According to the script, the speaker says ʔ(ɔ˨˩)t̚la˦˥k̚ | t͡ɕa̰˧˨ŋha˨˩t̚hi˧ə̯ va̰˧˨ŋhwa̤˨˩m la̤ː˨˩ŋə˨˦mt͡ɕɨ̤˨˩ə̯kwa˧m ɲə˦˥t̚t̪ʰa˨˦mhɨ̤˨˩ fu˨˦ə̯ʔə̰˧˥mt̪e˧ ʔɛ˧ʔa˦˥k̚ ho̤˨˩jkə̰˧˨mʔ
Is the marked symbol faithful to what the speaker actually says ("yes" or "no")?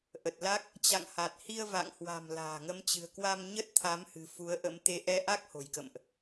no